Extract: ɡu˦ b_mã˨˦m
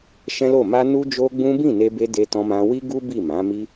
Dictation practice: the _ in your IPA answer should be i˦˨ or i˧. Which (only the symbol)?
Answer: i˦˨